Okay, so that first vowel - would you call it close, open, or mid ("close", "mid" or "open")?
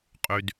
close